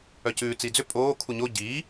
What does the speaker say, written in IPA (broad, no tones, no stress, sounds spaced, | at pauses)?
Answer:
œ c ʉː t͡s iː d͡z ʏ pʼ oː kʰ u ɲ o ɟ iː